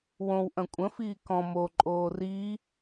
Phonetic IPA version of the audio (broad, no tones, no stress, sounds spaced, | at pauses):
w õ w ʔ ɐ̃ kʷʼ ə̃ f iː k ɔ̃ m o ǃʼ oː r i